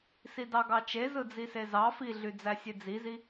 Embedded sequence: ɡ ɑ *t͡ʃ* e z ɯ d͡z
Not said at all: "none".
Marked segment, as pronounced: t͡ʃ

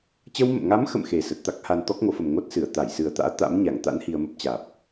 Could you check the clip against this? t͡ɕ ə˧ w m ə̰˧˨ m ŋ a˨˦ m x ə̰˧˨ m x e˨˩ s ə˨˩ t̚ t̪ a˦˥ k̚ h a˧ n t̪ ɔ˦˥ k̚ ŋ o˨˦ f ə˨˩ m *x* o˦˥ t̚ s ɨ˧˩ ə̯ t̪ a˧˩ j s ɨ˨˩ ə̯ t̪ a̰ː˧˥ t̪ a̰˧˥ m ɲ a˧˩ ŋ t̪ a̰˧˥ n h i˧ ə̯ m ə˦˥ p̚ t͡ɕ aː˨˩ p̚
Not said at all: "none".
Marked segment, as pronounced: ŋ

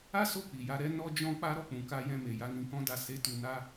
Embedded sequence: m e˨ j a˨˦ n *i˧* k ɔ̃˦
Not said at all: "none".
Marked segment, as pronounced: ĩ˧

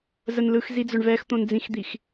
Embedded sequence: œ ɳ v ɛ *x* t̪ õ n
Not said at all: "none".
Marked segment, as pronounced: x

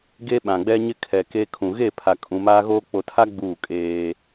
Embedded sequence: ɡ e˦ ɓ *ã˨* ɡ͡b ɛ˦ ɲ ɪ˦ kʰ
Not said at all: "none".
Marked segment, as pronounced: ã˨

